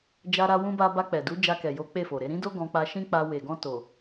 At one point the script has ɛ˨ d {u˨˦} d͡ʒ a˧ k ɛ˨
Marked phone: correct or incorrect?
correct